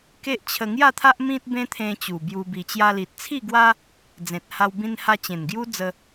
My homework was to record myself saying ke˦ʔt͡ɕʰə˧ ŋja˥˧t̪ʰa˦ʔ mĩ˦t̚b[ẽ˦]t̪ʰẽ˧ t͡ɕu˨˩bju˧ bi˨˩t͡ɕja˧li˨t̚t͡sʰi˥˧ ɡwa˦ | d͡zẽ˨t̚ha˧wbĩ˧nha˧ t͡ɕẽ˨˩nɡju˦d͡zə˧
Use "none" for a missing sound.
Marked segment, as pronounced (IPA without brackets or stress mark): ẽ˦